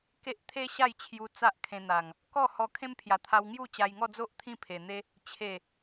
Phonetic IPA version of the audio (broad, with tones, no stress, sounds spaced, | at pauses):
k e˦ ʔ t̪ʰ e˦ ɕ a˥˧ j t͡ɕʰ j u˧ t͡s a˦ ʔ kʰ ẽ˧ n̪ a˨˩ ŋ | k ɔ˥˧ h ɔ˧ kʰ ẽ˦ m pʰ j a˨˩ t̪ʰ a˧ w ŋ j u˥˧ t͡ɕ a˧ j ŋ ɔ˥˧ d͡z o˦ ʔ t̪ʰ ĩ˥˧ pʰ e˨˩ n̪ e˦ | t͡ɕʰ e˨˩